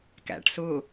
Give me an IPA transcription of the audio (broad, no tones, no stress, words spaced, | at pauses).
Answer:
kæ̰ʈsʊ